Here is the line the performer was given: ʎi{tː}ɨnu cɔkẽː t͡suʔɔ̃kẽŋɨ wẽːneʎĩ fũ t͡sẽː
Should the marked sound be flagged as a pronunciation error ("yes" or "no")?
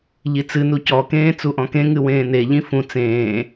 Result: yes